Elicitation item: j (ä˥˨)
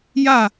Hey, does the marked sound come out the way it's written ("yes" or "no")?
yes